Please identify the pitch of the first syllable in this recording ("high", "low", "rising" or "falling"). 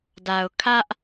low